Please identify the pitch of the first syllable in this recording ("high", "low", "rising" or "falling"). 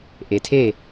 low